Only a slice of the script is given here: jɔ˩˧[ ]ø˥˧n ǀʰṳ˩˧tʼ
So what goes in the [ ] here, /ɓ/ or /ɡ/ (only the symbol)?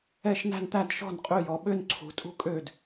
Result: ɓ